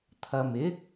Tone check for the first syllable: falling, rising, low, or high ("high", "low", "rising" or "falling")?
low